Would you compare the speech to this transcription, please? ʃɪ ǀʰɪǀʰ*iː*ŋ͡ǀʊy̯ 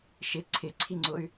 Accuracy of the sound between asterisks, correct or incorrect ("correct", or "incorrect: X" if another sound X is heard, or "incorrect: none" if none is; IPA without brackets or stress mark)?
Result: incorrect: i